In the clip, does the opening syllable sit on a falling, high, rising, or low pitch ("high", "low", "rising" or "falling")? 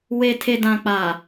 low